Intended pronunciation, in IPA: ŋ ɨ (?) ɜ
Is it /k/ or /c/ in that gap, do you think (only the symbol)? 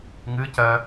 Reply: c